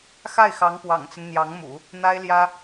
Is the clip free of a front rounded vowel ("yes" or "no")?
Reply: yes